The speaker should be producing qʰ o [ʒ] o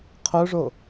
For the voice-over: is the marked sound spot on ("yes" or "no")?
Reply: no